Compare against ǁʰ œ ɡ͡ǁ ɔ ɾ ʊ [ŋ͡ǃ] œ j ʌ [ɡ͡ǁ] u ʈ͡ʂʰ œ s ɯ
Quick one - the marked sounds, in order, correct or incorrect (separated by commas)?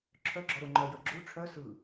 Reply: correct, correct